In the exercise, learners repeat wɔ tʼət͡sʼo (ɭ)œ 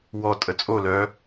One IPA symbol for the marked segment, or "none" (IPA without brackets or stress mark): l